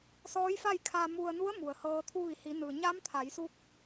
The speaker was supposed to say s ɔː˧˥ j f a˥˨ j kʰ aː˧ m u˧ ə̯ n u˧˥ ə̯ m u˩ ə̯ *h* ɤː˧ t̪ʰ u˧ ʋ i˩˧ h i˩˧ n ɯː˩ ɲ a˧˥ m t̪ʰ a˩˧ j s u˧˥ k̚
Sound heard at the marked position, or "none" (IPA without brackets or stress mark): h